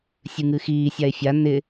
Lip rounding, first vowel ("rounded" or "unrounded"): unrounded